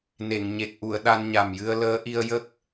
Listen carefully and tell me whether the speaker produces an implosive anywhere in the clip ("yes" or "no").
yes